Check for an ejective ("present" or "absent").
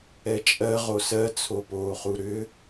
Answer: present